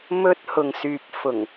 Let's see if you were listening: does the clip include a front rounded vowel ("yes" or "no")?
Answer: yes